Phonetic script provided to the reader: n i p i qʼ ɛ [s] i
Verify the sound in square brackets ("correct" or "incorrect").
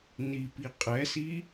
correct